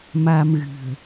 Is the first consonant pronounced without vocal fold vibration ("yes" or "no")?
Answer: no